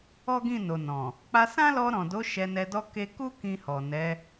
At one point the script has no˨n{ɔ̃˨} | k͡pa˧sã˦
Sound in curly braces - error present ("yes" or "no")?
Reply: no